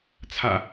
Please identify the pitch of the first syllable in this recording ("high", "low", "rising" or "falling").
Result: low